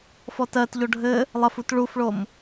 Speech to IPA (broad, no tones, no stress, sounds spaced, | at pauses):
f ɔ t ɜ t ʎ o ɖʱ ɘ | lˠ ɐ f u t ɭ u f ɭ o m